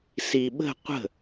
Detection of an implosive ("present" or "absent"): present